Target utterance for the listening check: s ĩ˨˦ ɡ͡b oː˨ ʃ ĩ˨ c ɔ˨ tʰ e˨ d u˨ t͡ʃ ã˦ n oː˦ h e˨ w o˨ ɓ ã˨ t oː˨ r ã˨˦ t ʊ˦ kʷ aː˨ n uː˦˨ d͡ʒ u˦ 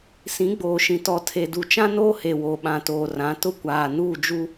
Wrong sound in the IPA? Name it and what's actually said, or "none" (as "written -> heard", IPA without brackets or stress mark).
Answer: c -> t